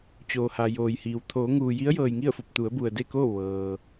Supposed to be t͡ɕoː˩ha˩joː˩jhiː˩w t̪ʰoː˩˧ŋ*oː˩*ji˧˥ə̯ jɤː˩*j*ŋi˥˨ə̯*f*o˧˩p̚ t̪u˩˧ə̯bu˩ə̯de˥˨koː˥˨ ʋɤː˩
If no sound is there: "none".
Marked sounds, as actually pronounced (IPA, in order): uː˩, j, f

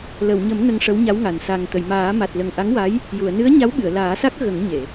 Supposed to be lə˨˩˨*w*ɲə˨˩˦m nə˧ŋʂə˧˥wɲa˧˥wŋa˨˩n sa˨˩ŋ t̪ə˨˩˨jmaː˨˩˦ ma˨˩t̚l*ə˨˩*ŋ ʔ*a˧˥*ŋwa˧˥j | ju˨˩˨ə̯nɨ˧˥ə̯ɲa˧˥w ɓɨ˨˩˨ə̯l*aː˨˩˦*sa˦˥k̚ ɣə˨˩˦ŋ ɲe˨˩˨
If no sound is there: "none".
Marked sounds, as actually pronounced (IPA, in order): w, ə˨˩, a˧˥, aː˨˩˦

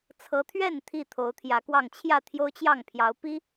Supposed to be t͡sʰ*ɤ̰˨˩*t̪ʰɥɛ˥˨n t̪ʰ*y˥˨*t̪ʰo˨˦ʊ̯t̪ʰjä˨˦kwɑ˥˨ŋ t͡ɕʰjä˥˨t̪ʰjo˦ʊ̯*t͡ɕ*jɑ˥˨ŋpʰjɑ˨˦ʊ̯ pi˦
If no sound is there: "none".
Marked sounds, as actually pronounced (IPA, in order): ɤ˨˦, i˥˨, t͡ɕ

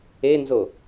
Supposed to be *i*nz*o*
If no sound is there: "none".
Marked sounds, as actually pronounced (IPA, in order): e, o

